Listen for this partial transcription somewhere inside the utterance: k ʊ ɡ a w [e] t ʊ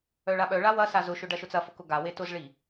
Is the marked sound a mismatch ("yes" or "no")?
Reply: no